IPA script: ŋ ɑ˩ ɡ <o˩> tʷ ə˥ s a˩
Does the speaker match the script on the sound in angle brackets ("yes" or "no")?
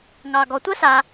no